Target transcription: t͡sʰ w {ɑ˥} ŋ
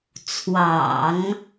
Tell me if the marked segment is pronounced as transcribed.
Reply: no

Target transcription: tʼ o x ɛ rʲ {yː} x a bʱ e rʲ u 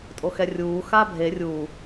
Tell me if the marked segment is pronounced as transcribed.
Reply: no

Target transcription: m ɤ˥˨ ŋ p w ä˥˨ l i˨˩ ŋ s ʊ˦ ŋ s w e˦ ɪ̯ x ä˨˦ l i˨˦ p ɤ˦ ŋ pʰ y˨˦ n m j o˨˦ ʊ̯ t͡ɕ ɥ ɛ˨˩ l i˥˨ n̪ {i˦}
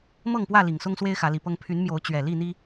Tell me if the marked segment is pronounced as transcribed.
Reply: yes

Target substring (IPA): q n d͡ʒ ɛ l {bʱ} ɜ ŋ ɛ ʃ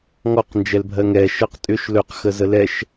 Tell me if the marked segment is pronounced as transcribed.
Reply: yes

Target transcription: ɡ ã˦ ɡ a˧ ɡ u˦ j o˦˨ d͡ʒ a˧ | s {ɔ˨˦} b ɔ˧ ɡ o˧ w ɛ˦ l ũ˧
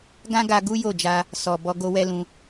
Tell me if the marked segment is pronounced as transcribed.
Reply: no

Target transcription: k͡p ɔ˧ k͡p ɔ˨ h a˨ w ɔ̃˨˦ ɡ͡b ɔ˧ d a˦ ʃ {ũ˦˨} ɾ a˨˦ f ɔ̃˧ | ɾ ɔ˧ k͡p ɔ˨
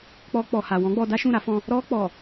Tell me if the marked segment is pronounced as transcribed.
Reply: yes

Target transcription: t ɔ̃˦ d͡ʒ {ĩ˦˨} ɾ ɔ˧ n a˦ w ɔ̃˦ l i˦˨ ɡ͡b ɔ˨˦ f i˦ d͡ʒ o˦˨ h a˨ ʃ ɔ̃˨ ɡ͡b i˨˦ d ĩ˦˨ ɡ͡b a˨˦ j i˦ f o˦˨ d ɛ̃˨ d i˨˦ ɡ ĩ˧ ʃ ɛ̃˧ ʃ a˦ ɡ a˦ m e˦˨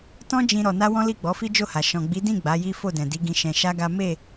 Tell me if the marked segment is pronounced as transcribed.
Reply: no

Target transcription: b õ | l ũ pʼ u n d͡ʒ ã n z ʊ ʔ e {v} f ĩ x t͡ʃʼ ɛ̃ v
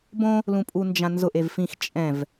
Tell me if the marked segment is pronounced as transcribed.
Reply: yes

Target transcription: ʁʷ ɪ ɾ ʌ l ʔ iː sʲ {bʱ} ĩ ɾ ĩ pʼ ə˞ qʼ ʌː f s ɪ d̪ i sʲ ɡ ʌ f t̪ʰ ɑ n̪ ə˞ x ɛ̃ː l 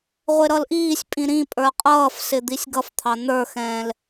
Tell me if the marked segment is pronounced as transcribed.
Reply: no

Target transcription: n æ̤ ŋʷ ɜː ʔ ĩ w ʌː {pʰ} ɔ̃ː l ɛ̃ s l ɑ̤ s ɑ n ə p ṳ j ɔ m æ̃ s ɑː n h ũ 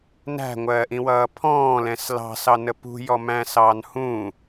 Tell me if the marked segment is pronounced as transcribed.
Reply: yes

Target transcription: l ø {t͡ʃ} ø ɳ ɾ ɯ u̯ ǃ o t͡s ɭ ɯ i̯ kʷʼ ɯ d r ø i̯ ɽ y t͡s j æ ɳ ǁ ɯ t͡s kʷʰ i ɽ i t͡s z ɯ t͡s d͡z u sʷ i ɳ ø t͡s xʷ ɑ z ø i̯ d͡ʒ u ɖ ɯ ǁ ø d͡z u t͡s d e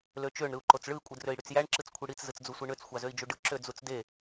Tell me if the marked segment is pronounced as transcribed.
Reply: yes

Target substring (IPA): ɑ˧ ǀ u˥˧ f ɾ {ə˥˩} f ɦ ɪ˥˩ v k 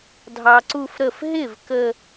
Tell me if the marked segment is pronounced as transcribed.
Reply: yes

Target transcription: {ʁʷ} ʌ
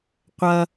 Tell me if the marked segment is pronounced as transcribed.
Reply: no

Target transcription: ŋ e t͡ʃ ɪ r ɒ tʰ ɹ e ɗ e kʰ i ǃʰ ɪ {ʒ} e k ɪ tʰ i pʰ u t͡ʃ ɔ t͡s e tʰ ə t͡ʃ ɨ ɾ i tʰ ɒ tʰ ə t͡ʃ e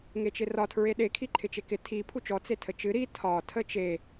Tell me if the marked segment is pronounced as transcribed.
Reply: no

